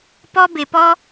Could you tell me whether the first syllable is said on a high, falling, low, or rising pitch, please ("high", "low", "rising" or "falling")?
high